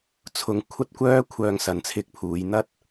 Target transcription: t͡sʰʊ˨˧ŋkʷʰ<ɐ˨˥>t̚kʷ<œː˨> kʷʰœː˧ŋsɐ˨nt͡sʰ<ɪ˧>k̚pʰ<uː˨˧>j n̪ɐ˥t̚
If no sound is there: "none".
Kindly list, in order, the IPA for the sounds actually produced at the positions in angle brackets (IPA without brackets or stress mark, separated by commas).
ɐ˥, œː˥, ɪ˧, uː˨˧